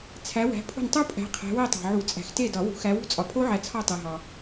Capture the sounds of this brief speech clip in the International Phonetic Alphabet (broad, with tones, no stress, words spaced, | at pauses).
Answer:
t͡sʰæ˨˦ wæ̤˨˦pʰṳ˦˨ntˤu˦˥pʼæ̤˨˦ qʰæ̤˨˦we˦˨tˤæ̤˨ʕu˨˩˦ t͡sʼæ̤˨˩˦xte˦˨dɒ˨˩˦ wṳ˨˩˦xæ˨˦wṳ˦˥ t͡sʼɒ˨pʰo˦˥ʕæ˨˦ t͡sʰɒ˦˨tˤe˨ɦɒ˨